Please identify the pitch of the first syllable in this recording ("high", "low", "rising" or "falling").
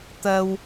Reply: high